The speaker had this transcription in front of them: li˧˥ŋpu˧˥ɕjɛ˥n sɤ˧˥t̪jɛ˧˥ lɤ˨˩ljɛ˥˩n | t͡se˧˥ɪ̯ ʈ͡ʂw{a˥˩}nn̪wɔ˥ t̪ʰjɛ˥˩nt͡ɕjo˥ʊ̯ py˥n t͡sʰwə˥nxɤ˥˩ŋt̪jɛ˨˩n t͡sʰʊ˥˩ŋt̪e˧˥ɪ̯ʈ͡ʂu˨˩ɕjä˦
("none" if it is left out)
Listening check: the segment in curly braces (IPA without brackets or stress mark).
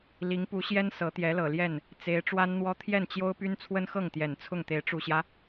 a˥